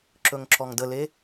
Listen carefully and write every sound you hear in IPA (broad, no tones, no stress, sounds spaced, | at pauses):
ǁ ɵ ŋ ǁ ɔ ŋ d ə l e